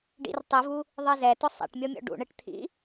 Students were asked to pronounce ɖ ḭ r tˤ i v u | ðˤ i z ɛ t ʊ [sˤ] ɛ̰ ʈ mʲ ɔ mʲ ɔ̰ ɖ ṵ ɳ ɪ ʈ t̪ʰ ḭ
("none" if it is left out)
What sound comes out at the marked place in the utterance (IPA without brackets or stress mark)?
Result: sˤ